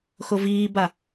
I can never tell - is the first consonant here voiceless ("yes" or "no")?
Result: yes